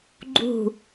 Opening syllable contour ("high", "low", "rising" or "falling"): falling